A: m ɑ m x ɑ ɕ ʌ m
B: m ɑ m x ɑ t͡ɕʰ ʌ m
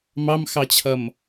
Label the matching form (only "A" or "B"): B